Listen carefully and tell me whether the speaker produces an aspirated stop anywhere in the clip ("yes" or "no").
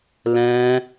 no